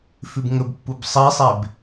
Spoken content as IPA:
f ʉ b ŋ ɵ b pː u b sˤ i sˤ e b

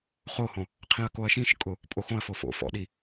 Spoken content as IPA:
χ o h õ | qʰ ĩ ɐ̯ k o ɐ̯ ʃ ĩ ʃ kʼ ʊ | pʼ o x õ ɐ̯ f o f o̰ f ɔ̰ ɗ i

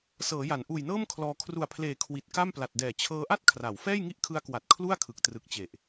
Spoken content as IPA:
s ɤː˩˦ j a˩˦ n ʔ uː˨˩ j n ɤː˥˩ m kʰ l ɔː˧ kʰ r u˨˩ a̯ pʰ l eː˨˩ kʰ w i˨˩ t̚ k a˥˩ m p l a˨˩ t̚ d ɛː˨˩ t͡ɕʰ ɤː˦˥ ʔ a˥˩ t̚ kʰ r a˩˦ w f ɛː˥˩ j ŋ i˥˩ ʔ kʰ ɯ˦˥ a̯ k w a˨˩ t̚ kʰ l u˥˩ a̯ kʰ ɯ˨˩ k̚ t r ɯ˨˩ k̚ t͡ɕ e˨˩ ʔ

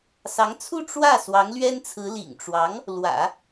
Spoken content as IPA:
s ɑ˧˥ ŋ t͡sʰ u˥˧ ʈ͡ʂ w ä˥˩ s w ɑ˧˥ ŋ l ɥ ɛ˥ n t͡sʰ ɹ̩˧˥ l ḭ˨˩ ŋ ʈ͡ʂ w ɑ˧˥ ŋ | l w ä̰˨˩˦

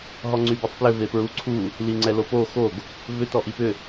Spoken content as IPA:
ɦ ɔ ŋ͡ǀ y b ɛ tˤ p l ʏ v e p ɹ u ǀʰ u | l i ŋ͡ǀ ɛ l o p o x o ɡ | v ʏ t ɔ ʔ i p ʏ

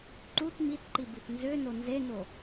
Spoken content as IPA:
ǃ u t m i t ǃ i b u t n z ø n o n z e n o

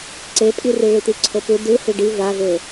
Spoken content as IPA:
ǀ e pʼ i r i ɭ i t̪ i ǀʰ o p u d ɯ h i ɖ i v a v e

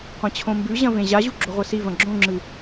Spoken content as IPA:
qʷ ɐ̃ t͡ɕʰ õ m b ʉ ʑ ɐ̃ v ẽ ʑ a ʑ u ɡ͡ǁ o ʁʷ ɐ s i v ɐ̃ ɡ͡ǁ õ ŋ͡ǁ ɨ

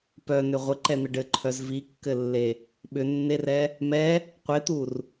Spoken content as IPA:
p œ n ʏ ʁʷ ɘ ǃ ɛ n̪ ə ɖ ɘ ǃʰ œ z v i kː ɘ lː e | ɓ ʏ nː e r ɛ | m ɛ | qʷ e t̪ u r

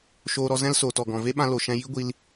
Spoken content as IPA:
ʃ oː˧ ɾ ɔ˧ z ɛ̃˦ l s oː˨ t ɔ˨ ɡ ɔ̃˨ v e˦ ɓ ã˧ l o˨ ʃ ɛ̃˧ j i˦ ɡʷ i˧ l

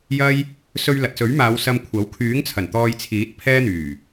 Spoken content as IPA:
j ɐ˥ j | s ɵ˧ ɥ l ɐ˨ t̚ s ɵ˨˥ ɥ m aː˨˧ w s ɐ˧ m kʷʰ ɐ˨˥ w kʰ yː˨˥ ŋ t͡sʰ ɐ˨˩ n t̪ ɔː˧ j t͡sʰ iː˨˥ t̚ pʰ ɛː˥ n̪ yː˨˩

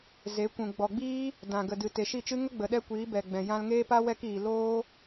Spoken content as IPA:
z e˨˦ kʷ ũ˨ ɡ͡b ɔ˨ ɡ͡b iː˦ | d ã˨ ɡ ə˨ d ɨ˨ t e˨ ʃ i˦˨ t͡ʃ ɨ˦ ŋ ə˦ ɡ͡b ə˨ ɗ ɛ˦ kʷ iː˨˦ b ɛ˨ ɡ͡b ɛ̃˨ j ã˧ l ŋ eː˦ p a˦ w ɛ˦ k iː˨ l oː˦

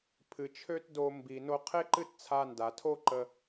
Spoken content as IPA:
pʰ ɨ˩ t͡ʃʰ ø˥ t d o˧ m b i˩ n o˧ qʰ e˥ ǃ ɨ˥ t t͡sʰ a˧ n d a˩ tʰ o˥ ǃ ə˧

